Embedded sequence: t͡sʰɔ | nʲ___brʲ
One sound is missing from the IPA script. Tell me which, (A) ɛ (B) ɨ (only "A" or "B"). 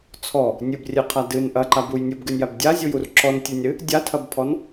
B